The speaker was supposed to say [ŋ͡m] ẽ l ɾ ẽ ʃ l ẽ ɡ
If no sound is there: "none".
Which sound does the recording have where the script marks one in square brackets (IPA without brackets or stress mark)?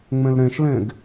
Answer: ŋ͡m